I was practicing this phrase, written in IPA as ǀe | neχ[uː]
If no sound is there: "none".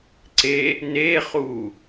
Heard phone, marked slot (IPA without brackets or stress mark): uː